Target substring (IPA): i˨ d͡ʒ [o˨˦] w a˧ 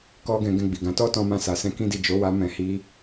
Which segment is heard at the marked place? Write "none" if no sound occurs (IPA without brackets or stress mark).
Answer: o˨˦